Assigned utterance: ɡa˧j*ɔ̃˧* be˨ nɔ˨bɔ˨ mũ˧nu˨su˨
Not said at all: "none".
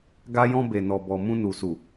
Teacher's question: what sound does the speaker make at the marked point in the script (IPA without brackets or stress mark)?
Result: ɔ̃˧